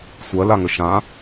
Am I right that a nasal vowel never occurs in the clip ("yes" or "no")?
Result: no